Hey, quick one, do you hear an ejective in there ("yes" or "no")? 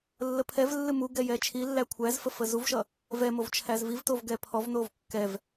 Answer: no